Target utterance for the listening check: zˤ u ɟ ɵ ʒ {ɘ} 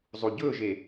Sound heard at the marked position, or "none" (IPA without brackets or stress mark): e